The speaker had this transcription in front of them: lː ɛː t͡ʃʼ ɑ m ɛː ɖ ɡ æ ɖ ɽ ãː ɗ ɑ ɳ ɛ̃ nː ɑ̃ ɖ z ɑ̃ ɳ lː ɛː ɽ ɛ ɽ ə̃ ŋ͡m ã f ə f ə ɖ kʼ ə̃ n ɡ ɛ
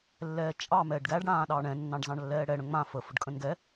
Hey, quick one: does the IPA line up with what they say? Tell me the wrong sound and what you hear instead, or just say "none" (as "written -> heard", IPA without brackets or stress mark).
none